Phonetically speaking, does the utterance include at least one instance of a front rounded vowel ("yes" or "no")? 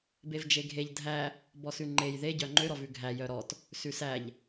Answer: yes